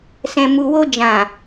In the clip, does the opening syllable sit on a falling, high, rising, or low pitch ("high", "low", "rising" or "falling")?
low